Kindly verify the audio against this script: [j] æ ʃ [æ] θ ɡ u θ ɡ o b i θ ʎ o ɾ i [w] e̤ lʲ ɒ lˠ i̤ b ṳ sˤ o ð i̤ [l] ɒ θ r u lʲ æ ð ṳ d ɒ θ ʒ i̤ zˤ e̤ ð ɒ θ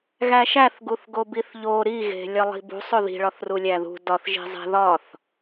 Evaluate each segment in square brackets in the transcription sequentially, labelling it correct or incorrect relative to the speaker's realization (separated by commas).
incorrect, correct, incorrect, incorrect